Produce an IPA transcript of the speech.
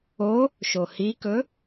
o | ʃ o h i k ɵ

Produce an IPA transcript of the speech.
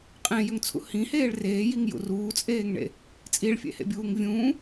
qʼ ẽ j ø ŋ t͡sʰ ṵ h ĩ h eː ɭ r eː j i ŋ j ṵ r uː t͡sʼ eː ŋ ɳ ḛ | t͡sʼ i ɭ fʲ ḛ h ḛ bʲ uː ŋ vʲ ũː

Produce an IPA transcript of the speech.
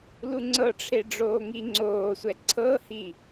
l u ŋ͡ǀ ɤ ʈ͡ʂʰ e ɖ͡ʐ oː ŋ i ŋ͡ǀ oː sʷ ɛ ǀʰ ɤ h i

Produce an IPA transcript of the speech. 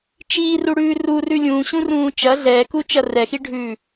t͡ʃ iː r u ɽ ʉː r u r ʉ lʲ ũ ɕ ũ r ũː t͡ʃ ɐ ɮ ɛː k u t͡ʃ ɐ r ɛ x i ɖʱ ʉː

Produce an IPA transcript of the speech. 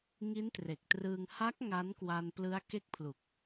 ŋ i˦˥ n t r e˨˩ k̚ t r ɯː˧ ŋ h a˦˥ k̚ ŋ a˦˥ n k w a˧ n p l ɯ˦˥ a̯ k e˦˥ k̚ pʰ l u˨˩ k̚

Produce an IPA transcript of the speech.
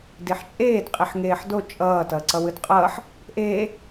d i ħ t͡ʃʼ eː d qʼ i ħ ŋ eː ħ d o t͡ʃʼ ʌː t ʌː ǀ ʌ w ɯ d qʼ ʌː ħ | ʔ eː

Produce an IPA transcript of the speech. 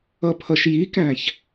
ʌ pʰ ʌ ʃ j i k æ̃ ç

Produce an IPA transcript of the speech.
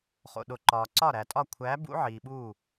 χ o̰˨ ɗ o˨ ǃ ɒː˨ ǀ ɒ˥˩ ɾ æ˨ tʼ ɒ˥˩ kʷʰ æ˨˦ b ṵ˨˦ ʕ iː˨ ɓ uː˥˩

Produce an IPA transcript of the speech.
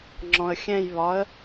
ŋ͡ǁ ɔ̃ ə̯ xʲ ɛ̃ j β ɒ ə̯

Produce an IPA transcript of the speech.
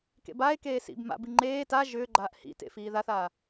k ḛ b a e̯ k eː s ḭ b m a̰ b i ŋ͡ǃ eː t a ʒ ʏː ɡ͡ǃ aː ʔ h ḭ t ḛ f iː ð a θ a

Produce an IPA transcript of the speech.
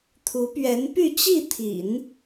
t̪ʰ u˧˥ p ɥ ɛ˧˥ n p y˥˧ t͡ɕ i˥˩ t̪ʰ ḭ˨˩˦ n

